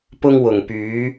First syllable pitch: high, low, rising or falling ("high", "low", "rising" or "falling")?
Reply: high